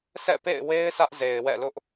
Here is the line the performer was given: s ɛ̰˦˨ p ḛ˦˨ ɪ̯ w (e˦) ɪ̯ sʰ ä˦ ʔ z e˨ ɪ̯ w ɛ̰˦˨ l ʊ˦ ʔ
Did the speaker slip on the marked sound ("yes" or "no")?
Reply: no